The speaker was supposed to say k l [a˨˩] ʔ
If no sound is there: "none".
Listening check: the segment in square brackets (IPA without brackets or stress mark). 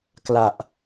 a˨˩